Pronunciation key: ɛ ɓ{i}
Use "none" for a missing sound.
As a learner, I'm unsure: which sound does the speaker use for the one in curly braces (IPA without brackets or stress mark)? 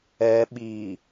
i